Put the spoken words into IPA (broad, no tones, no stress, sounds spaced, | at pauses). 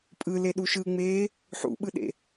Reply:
pʼ ɯ l e ɗ u ʃ ɯ ŋ͡m eː | ħ ṵ ɓ ɯ ɗ ḛ